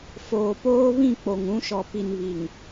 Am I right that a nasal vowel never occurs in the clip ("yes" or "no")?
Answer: no